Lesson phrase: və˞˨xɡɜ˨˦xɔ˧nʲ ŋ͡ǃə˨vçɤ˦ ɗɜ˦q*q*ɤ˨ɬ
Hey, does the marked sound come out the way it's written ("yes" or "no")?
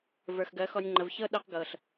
no